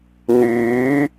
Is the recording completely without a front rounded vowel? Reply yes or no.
no